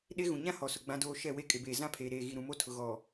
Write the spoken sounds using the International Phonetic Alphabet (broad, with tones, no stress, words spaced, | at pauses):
ɗe˦ ɣũ˨ɲã˦ hɔ˨sʊ˨ ɡ͡bã˦doː˦ ʃɛ˦˨we˦kʼɪ˨beː˨ zã˦pʰeː˨ɾeː˨ ɣi˨ɾũ˨mo˦ tʰʊ˨ɣɔ˨